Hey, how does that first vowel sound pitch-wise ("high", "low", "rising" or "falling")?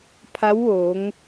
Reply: rising